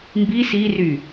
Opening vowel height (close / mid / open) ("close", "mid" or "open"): close